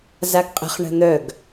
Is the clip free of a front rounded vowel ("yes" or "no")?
no